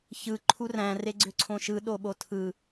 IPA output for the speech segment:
ç ɯ ǃʰ u r æ̃ r e ɡ͡ǀ ø ǀʰ õ ʃ ɯ ɗ o ɓ o tʰ ɯ

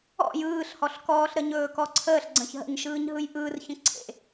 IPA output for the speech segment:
ɔ̰ j ɯː ɬ h ɔ ɬ k ɔː ɬ ɾ ə ɲ ɵː k ɔ ǀʰ əː ɬ ɡ͡ǀ ə̃ ç ɦ ə̰ ɲ ʃ ɯː ɲ ɦ ɯ j ʔ ɯː r ç ə̃ ǀʰ ḛ

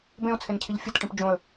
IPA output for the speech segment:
b ẽ ʊ̯ t͡sʰ e n cʰ i ʎ fʲ ɨ t ʈ ĩ p d͡ʒ õ ə̯

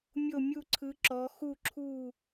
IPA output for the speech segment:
mʲ o˥˩ mʲ u˥˩ ǀʰ ɯ˨˦ ǁ ɔ˨˦ x u˥˩ ǁʰ u˥˩

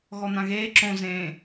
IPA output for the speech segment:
ɣ ɔ n̪ ã ɣ eː ǁ õ z ẽː

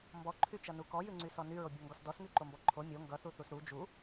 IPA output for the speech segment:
m b ɔ ǃʰ y t͡ʃ ʌ n u k ɔ j ʉ ŋ͡ǀ y s ɔ n y ɹ o bʲ o ŋ ɡ ɔ s d ɔ s ŋ y ǃ o m b ɔ ǃʰ o mʲ o ŋ ɡ ʌ θ u θ u s ɾ u d͡ʒ u

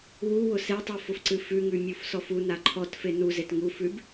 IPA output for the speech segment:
w u w ʊ s e tˤ u f ʊ f ǀ ɨ f ʉ ŋ ʉ mʲ u f s ɔ f u n a ǃʰ ɔ t f e n u z e t ŋ u f ʉ b

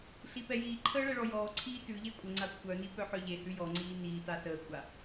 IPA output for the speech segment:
ɬ i p ɛ j iː ǃʰ əː ɭ ɛ ɭ ɔ j ɔː ǀʰ iː t ʉ ʎ e kʷʼ ə ŋ͡ǀ a kʷʰ œ n i p œ ħ œ ʎ e h ʉ j ɔ ŋ͡ǀ iː n iː t a s əː kʷʼ a

